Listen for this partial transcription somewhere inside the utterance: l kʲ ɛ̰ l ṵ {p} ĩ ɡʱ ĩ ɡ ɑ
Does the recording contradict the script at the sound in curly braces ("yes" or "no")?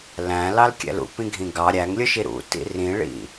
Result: no